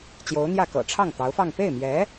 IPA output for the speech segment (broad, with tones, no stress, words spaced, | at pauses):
t͡ɕjo˧˥ʊ̯n̪jä˥˩kɤ̰˨˩ ʈ͡ʂʰɑ˥˩ŋt̪ɑ˧˥ʊ̯fɑ˥˧ŋ pe˥˩ɪ̯mjɛ˧˥